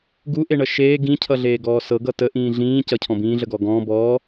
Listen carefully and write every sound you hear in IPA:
ɡ u ʔ e ɳ ʌ ʃ eː ɡ ĩ cʰ ʌ ɮ eː ɡ ɔː s ɤ ɡ ʌ t ə ʔ ĩː ɮ ĩː c ʌ cʰ ɔ̃ b ĩː ɮ ə ɡ ɔː ɡ ɔ̃ː b ɔː

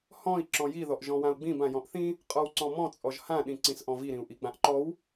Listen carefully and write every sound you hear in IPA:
h ɔ̃ i̯ ǁ ɔ̃ j i ð ɔ ʔ ʒ ɔ̃ w ã u̯ ɡ͡b ĩ b ã j ɔ̃ ʔ θ ĩ | qʼ ɔ w ǀ ɔ̃ m ɔ̃ t͡sʼ ɔ ʒ h ã ɗ ĩ ǀ ĩ s ʔ ɔ̃ v i ɾ ĩ u̯ ʔ i ɡ͡b ã ʔ ǃ ɔ w

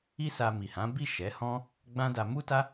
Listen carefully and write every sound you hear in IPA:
i˦ s a˧ m i˨ h ã˨˦ b i˦˨ ʃ ɛ˨˦ h ɔ̃˦ | ɡ͡b ã˦ d a˧ m u˦ t a˦

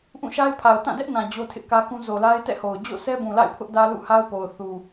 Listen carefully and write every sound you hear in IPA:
ʔ ũ˦˨ ʃ a˦ ɪ̯ pʰ a˨ ʊ̯ t ã˦˨ d ɛ˦ ʔ n ã˨ d͡ʑ o˦ tʰ ɪ˦ ʔ k ä˦ k ũ˦ z o˨ l a˦ ɪ̯ t ɛ̰˦˨ h o˨ ʊ̯ d͡ʑ o̰˦˨ s ɛ˦ b ũ˨ l a̰˦˨ ɪ̯ pʰ ʊ˦ ʔ d ä˦ l ṵ˦˨ h a˦ ʊ̯ p o˨ ʊ̯ θ u˨

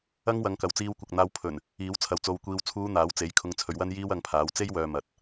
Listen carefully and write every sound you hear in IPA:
ɐ˥ ŋ w ɐ˨˧ ŋ k ɐ˨ w t͡s iː˧ w kʷ ɐ˨ k̚ n̪ aː˧ w pʰ ɵ˨˩ n | iː˨˥ w t͡sʰ ɐ˨˧ w t͡s o˧ w kʷ iː˧ w t͡sʰ uː˨˧ n̪ aː˨˥ w t͡s e˨˥ j kʰ ʊ˧ ŋ t͡sʰ ɵ˨˧ ɥ w ɐ˥ n j iː˥ w ɐ˧ ŋ pʰ aː˨˥ w t͡s e˥ j w œː˨ m ɐ˨ t̚

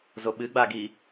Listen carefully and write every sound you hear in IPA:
z o ɓ ɨ ɡ͡b a ɡ i

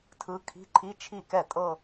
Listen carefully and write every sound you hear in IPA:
tʰ ɯ˧˥ kʰ i̤˧˥˧ ǃʰ i˧˥˧ t͡ʃʰ i˥˩ k ɛ˥˩ tʼ ɤ˥˧

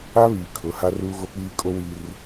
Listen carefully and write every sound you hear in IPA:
a˦ β iː˨ kʰ ʊ˨˦ h a˦ r uː˦ ɣ o˦ k͡p iː˦ kʼ o˦ w i˦ r

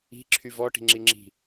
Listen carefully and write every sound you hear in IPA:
i̤ ǁʰ y v ɔ ʈ i̤ ŋ͡ǁ i ŋ͡ǁ i̤

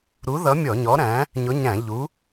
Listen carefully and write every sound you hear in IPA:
ɾ u˨˥ ð ʌ˨˥ mʲ ɔ˧˩˧ ɲ ɔ˨˥ ɾ æ̃˨˥ | ɲ ʊ˨˥ ɲ æ̃˧˩˧ ʎ u˨˥

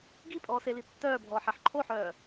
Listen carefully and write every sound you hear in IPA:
ɡ i pʼ ɔː s e l i tː œː bʱ ɔː ħ ɛ ħ ǃʰ o ħ œː

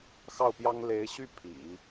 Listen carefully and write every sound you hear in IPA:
x ɑ˥˩ ʊ̯ p j ɑ˥ ŋ l e˧˥ ɪ̯ ɕ y˥˩ pʰ ḭ˨˩˦

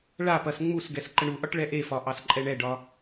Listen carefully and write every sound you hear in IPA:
ɭ a p ɐ s ŋ͡m u s ɡ ɛ s ǃ ə ɳ u ʔ ɒ ʈ ɭ ɛ ʔ e f ɒ ʔ ɑ s ǃʼ ɛ ɳ ɛ ɖ ɒ

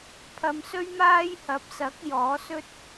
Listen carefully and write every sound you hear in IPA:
pʰ ɐ˨˧ m s ɵ˥ ɥ m aː˥ j h ɐ˨˥ p̚ s ɐ˨˥ k̚ j ɔː˨˥ s ɵ˥ t̚

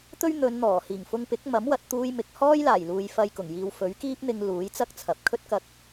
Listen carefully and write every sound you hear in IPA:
t̪ ɵ˥ ɥ n̪ ɵ˨˧ n n̪ ɔː˨˩ h iː˨˩ ŋ f ʊ˧ ŋ p ɪ˨˥ k̚ m ɐ˨˥ m w ɐ˨˥ t̚ t̪ uː˥ j m ɪ˨˥ k̚ h ɔː˥ j l aː˨˩ j l uː˨ j f ɐ˧ j k ʊ˨˩ ŋ j iː˧ w f ɵ˨˥ ɥ k iː˥ p̚ n̪ ɪ˧ ŋ l uː˨˥ j t͡s ɐ˥ k̚ t͡sʰ ɐ˨ p̚ kʰ ɵ˥ t̚ k ɐ˧ k̚

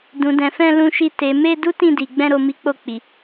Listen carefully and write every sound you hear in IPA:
d ũ˨ d ɛ̃˨ f ɛ̃˧ l ũ˧ ʃ i˧ t e˨ m e˧ d u˦ t ĩ˧ d i˨ ɡ͡b ɛ̃˧ ɾ o˨ m i˨˦ k͡p o˧ k͡p i˨

